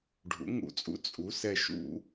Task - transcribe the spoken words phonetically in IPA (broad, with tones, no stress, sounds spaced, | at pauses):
ɖʱ ṵ˩˥ ŋ ṵ˧˩˧ t͡sʼ ṵ˩˥ t͡sʼ u˩˥ s ɛ˧˩ ʃ ṵ˧˩˧